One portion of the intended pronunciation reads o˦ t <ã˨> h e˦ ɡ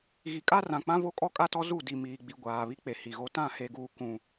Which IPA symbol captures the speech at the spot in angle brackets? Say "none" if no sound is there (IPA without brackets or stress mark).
ã˦˨